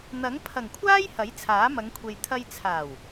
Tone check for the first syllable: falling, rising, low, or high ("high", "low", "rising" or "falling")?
rising